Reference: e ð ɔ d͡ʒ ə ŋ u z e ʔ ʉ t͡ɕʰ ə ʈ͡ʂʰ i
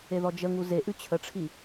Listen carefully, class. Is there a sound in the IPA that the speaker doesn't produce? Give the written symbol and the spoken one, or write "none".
none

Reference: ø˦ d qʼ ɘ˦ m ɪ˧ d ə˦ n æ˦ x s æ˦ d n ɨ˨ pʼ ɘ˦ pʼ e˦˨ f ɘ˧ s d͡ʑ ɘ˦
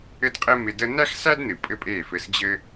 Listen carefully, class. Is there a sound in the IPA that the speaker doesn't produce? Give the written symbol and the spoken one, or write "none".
ø˦ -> ɘ˦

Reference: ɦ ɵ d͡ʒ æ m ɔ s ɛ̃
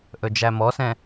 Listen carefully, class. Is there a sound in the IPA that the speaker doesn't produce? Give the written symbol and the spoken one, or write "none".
ɦ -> ʔ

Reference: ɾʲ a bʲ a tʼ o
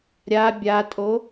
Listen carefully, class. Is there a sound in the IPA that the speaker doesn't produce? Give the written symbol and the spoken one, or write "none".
none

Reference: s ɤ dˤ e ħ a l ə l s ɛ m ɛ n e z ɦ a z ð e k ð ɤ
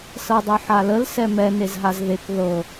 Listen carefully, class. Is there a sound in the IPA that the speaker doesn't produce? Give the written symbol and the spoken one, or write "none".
none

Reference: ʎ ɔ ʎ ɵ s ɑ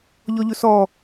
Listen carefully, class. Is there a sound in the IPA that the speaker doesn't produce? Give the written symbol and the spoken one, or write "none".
ɑ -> ɔ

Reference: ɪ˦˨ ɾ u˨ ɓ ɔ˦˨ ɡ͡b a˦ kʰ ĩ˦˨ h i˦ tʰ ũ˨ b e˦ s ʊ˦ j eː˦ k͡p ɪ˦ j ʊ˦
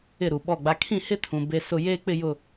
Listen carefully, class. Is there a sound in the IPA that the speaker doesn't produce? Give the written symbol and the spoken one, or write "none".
i˦ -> ɪ˦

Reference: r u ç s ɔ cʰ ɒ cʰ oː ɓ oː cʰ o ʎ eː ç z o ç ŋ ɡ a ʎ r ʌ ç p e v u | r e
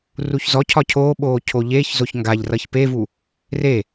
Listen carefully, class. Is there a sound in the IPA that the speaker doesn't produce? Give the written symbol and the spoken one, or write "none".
s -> z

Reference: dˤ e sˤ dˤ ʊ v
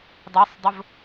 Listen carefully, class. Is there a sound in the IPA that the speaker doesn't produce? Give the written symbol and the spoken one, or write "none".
none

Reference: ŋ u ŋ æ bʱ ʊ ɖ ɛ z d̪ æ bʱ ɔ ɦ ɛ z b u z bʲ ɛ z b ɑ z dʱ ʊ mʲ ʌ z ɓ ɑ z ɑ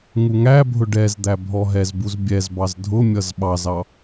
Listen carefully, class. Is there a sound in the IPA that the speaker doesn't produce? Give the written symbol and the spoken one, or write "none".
none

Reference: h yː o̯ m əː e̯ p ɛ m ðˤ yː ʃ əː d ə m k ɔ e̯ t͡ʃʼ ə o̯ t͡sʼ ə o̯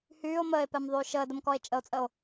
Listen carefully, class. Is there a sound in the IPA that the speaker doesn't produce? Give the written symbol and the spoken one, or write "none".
none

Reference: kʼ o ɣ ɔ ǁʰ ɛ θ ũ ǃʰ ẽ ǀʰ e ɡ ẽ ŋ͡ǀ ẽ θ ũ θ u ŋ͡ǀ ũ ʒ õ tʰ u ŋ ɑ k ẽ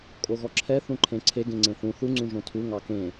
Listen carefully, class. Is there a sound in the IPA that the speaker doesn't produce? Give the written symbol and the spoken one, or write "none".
none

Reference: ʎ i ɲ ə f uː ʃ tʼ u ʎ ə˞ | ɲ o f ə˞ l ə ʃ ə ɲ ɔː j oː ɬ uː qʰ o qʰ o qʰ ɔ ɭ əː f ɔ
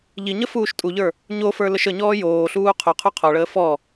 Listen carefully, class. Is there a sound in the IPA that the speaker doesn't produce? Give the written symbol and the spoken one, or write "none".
none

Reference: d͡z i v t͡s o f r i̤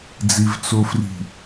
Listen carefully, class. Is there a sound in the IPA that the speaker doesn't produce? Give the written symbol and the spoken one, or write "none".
none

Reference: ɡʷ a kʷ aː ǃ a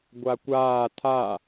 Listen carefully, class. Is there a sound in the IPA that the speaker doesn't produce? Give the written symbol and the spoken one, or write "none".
ǃ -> tʰ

